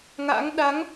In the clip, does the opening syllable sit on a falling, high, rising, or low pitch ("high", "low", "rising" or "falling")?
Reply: rising